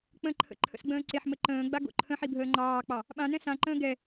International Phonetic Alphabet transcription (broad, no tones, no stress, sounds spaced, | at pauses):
k͡p ə̃ ǃʰ ə̰ ǃʰ ə̰ s ɡ͡b ə̃ː ǀ e ħ m ə ǃ ə̃ː ɡ͡b a ɡ o̰ ǃʰ ə̃ ħ i bʱ əː ŋ͡ǃ ɑː k͡p ɑ | ɓ ã n ɛ̃ s ã ǃ ə̃ː ɡ ɛ